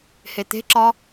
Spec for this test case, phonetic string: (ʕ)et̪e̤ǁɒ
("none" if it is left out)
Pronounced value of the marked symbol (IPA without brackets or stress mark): h